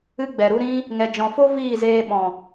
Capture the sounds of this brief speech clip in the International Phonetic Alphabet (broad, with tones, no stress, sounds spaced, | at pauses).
ɨ˦ ɡ͡b ɛ˨ ɾ u˦ ɾ ĩ˦ | ŋ ɛ˨ d͡ʒ ɔ̃˨ f o˦ v iː˦˨ z eː˧ ɓ ɔ̃˨